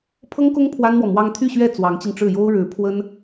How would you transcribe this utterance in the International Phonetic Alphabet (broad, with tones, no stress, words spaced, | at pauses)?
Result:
pʰɤ˥ŋkʊ˥ŋ pʰwa˥nmwɔ˨ mwɑ˥ŋ t̪ʰy˥˧ɕɥɛ˥˩ t͡swɑ˧˥ŋt͡ɕi˧ŋʈ͡ʂɻ̩˥˩ jo˥ʊ̯ɻɻ̩˧˥ pʰwə˥n